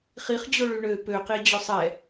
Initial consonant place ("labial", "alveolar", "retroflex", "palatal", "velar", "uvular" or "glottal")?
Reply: uvular